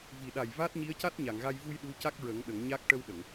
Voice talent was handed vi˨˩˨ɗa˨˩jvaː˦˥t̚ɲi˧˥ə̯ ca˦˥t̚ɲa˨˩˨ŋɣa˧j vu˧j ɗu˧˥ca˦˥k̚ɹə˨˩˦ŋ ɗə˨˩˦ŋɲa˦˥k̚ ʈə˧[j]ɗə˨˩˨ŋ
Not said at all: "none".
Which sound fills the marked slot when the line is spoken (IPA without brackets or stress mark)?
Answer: w